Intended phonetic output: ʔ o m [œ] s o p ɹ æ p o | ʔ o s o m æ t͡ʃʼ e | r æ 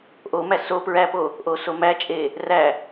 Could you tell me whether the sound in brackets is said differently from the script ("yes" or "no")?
yes